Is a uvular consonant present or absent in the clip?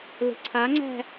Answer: absent